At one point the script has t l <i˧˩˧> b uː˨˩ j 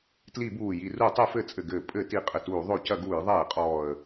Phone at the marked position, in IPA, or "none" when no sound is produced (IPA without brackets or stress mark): i˧˩˧